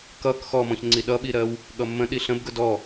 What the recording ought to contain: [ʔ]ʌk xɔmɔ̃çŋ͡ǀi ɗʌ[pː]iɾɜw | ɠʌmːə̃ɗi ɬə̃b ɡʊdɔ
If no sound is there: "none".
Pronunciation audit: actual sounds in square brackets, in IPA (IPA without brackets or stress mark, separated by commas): k, ɓ